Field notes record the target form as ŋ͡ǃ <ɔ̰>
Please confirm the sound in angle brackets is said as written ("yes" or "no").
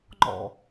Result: yes